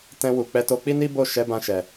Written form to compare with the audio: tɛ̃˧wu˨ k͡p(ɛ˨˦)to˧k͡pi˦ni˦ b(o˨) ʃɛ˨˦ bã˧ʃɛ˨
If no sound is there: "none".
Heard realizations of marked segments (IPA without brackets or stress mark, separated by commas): ɛ˨˦, o˦˨